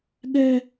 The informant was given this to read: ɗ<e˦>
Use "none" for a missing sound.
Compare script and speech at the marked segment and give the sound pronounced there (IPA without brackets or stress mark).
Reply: ɛ˦